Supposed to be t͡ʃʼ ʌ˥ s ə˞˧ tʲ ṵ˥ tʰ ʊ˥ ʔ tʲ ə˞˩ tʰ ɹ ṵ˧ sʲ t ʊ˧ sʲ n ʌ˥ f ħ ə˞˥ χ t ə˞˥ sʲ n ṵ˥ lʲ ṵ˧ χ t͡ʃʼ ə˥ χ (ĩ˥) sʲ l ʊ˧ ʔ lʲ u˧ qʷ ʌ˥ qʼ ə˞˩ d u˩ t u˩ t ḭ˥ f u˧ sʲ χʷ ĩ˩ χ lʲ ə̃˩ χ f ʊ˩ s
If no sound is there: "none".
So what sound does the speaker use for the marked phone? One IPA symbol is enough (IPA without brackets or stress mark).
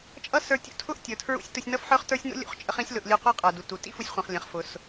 ĩ˥